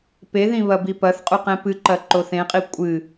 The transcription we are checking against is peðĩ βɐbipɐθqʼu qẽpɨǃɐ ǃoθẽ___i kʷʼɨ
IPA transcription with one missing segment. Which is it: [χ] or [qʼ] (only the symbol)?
qʼ